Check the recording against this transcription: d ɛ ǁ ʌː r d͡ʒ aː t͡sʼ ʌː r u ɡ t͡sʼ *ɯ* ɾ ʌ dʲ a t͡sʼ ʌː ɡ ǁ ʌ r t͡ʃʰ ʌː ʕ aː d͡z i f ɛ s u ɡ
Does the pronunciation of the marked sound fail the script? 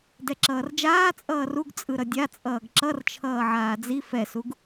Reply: no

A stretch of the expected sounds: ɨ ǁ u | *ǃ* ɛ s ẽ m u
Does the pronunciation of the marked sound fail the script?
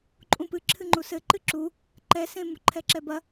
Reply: no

